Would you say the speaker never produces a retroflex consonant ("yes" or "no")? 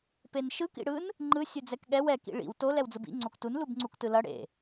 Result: no